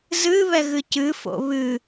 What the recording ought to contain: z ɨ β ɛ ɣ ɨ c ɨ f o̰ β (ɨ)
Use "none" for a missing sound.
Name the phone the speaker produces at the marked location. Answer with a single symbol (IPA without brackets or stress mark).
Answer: ɨ